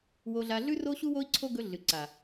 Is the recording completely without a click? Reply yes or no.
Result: no